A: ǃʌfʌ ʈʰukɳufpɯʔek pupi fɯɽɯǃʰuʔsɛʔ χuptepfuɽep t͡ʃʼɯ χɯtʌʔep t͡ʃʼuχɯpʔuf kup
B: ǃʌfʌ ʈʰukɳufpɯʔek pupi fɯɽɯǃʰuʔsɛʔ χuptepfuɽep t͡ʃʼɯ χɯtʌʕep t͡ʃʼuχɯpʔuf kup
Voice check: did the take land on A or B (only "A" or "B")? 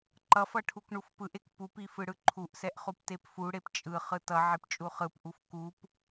B